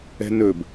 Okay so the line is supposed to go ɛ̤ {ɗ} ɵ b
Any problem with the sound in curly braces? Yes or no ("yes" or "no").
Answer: yes